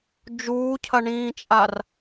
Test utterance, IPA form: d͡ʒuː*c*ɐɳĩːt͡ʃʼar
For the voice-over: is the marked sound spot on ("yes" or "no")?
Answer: no